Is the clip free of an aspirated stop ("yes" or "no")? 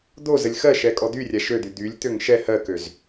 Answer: yes